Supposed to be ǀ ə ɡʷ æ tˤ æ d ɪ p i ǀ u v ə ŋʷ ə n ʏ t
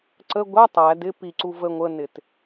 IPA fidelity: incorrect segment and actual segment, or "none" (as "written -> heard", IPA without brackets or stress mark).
ʏ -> ɪ